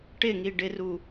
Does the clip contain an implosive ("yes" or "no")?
no